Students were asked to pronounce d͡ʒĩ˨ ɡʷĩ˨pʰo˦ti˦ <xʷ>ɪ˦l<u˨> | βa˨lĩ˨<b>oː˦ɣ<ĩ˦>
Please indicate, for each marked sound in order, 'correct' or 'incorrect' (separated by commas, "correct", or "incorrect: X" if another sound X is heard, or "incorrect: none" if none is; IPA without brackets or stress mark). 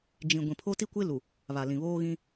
incorrect: kʷ, correct, incorrect: β, correct